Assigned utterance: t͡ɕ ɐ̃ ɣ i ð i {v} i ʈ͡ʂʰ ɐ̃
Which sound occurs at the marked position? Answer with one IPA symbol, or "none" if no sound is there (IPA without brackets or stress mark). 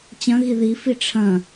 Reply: f